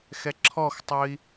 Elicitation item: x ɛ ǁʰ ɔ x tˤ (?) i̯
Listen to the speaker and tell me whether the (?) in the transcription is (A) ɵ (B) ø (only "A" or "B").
A